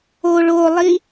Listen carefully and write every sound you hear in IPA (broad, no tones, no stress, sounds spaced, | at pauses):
o ɭ o lˠ i